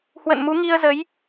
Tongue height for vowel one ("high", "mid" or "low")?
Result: mid